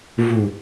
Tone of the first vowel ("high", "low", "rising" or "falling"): low